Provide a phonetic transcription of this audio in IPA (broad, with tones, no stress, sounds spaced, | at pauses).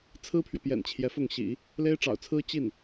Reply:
t͡sʰ ɹ̩˥ pʰ ɥ ɛ˨ p j ɛ̰˨˩ n t͡ɕʰ j ɛ˧˥ f ʊ˥˩ ŋ ɕ ḭ˨˩˦ | l e˥ ɪ̯ ʈ͡ʂ ɑ̰˨˩ ʊ̯ t͡sʰ ɹ̩˥ t͡ɕ i˥˩ n